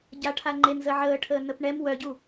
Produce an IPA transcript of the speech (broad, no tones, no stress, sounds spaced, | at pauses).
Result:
ɟ a ʈʰ a ŋ͡ǃ e n z ə ʕ əː ʈʰ əː n ə p ɳ ɛ m w œ ɟ u